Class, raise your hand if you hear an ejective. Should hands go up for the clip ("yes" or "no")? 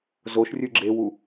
no